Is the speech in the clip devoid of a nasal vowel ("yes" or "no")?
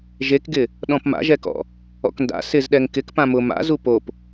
no